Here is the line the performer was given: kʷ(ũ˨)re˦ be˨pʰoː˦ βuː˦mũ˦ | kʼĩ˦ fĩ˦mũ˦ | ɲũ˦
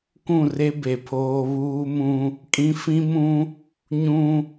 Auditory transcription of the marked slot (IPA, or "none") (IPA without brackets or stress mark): ũ˦˨